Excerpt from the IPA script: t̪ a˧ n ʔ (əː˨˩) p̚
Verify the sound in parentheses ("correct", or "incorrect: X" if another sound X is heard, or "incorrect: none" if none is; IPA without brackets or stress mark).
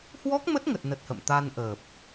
correct